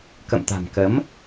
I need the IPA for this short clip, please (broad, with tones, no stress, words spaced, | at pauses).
kə̰˧˨mt̪a̤˨˩mkə˨˦m